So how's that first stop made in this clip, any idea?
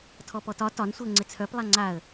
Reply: aspirated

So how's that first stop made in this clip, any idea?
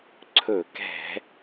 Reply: click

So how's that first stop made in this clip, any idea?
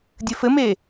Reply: plain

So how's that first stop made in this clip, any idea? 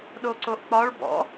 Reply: implosive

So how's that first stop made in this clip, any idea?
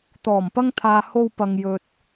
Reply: plain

